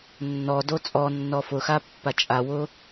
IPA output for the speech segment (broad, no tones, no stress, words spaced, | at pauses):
nːɔdo t͡sʼɔnːɔ fʊxapːa t͡ʃʼawʊ